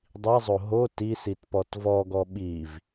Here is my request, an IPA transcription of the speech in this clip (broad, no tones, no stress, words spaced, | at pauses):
dˤizˤo ɦo tisitpɔt vɔɡɔ ɓiv